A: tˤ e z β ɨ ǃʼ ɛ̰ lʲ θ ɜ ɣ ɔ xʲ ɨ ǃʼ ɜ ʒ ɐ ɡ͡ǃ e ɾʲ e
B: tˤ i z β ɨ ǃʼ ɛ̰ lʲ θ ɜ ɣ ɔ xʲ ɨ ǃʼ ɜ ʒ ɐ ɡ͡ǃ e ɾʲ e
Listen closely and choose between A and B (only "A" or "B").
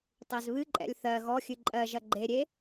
A